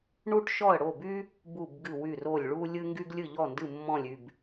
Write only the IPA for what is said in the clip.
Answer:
ɳu˧ʈʃɔ˧˩ə̯ɽo˧˩by˧ | bu˧˩bɡɨ˧˩wy˧˩ro˧˩lʲ ɭu˧lʲɨ˧ ŋɡy˧ɡlʲɨ˧˩ʎɔ˧˩ndɨ˧˩ mːɔ̃˧˩lʲy˧˩b

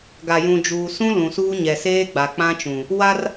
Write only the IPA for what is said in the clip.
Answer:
ɡa˨jũ˨d͡ʒuː˨sũ˦ lũ˨suː˦ɲɛ˨ seː˦ɡ͡ba˨k͡pã˦t͡ʃũ˨ | wa˦r

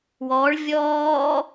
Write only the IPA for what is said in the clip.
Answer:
wɔɭ vʲɔː

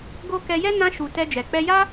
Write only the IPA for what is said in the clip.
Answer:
ɡo˧ kɛ˧jɛ˦ nã˧ʃu˨ tɛ˧d͡ʒɛ˨ k͡pɛ˧ja˦

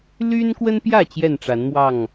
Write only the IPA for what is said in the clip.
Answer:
ly˦nkwə˦npjä˥˨ t͡ɕjɛ˥˨nʈ͡ʂa˨˦nmwɑ˥˨ŋ

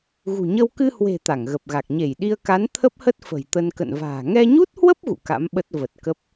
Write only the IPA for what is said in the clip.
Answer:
ɣṳ˨˩ɲə˧w kɨ˧hwe̤˨˩ t̪a˧˩ŋɣə˨˩p̚ɣa˨˩k̚ ɲe˧˩jɗi˧ə̯ka˨˦n t̪ʰə˦˥p̚hə˦˥t̚ fə̤˨˩jt̪ə˧n kə̰˧˨nva̤ː˨˩ ŋɛ˧ɲu˦˥t̚hwə˦˥p̚ ɣṵ˧˨ka̰˧˥mɓə˦˥t̚ və˨˩t̚kə˦˥p̚

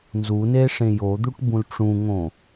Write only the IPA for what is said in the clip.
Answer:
nzune ʂẽjod̪uʈ bũlʈ͡ʂũŋõ

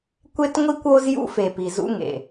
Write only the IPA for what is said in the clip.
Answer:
kʷe˦tŋʷi˦kʷo˦z jṵ˦fe˨pi˨ zṵ˦ŋḛ˨

